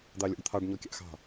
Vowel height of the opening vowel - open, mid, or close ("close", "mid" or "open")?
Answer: open